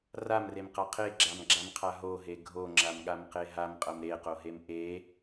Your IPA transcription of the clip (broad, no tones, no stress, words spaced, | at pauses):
ramremqa qʰeɡ͡ǁamɡ͡ǁamqʰa ɦoɦe ɡʱoŋ͡ǁamɠamqe ɦamqʼɐm ɾeqoɦem ʔe